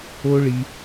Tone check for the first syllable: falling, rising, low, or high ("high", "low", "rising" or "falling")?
high